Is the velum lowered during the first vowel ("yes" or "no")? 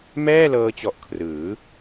no